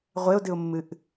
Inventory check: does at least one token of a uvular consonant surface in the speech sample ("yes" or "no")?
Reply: yes